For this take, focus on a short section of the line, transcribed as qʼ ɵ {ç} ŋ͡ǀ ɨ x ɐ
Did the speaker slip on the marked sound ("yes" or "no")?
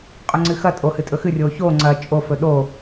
yes